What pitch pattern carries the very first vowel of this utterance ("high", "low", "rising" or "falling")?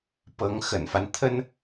rising